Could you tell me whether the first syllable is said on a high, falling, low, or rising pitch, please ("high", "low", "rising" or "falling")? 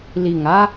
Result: low